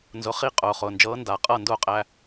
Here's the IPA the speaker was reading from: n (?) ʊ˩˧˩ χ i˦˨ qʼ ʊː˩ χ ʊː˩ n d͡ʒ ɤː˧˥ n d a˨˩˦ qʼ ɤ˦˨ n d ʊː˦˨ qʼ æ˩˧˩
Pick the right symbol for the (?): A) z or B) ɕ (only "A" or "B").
A